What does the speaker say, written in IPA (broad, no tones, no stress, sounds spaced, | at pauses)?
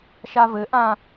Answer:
ʃ a v ɘ ʔ ã